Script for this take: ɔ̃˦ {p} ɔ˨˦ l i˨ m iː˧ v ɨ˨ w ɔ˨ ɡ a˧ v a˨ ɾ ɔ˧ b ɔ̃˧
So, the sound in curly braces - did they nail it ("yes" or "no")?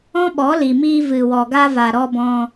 no